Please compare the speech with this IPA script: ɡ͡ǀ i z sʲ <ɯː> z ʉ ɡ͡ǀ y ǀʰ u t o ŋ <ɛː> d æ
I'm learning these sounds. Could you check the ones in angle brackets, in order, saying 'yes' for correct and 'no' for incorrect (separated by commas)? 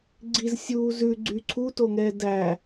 no, yes